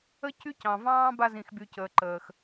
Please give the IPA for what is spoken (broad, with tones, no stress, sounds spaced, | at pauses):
ə˦ c y˦ c ɑ̃˨ v ɑ̃ː˦ b a˧ z ĩ˨ x b y˨ c əː˨ ǃ əː˨ x